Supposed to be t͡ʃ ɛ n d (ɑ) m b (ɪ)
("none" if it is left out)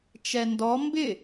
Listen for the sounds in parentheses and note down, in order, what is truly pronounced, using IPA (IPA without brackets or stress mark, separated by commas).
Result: ɔ, ɪ